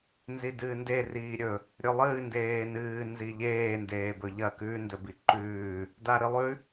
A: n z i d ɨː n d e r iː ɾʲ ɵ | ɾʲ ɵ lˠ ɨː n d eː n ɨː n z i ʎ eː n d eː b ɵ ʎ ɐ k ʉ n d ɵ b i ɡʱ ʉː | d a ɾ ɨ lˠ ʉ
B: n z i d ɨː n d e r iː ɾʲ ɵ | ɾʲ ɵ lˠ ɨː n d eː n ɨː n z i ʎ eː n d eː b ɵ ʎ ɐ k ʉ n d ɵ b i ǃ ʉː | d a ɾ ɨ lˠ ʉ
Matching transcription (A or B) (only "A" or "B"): B